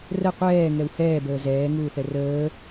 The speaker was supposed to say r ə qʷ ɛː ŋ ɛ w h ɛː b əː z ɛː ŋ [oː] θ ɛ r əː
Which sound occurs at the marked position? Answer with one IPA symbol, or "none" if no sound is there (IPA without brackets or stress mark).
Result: uː